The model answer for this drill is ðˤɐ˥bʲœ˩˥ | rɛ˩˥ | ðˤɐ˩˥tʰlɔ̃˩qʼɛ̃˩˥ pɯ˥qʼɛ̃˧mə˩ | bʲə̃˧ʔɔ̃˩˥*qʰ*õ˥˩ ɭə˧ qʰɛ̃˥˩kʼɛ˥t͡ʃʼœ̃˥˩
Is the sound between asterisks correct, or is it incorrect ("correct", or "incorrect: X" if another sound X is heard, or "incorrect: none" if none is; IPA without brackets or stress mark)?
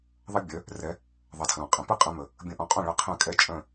incorrect: qʼ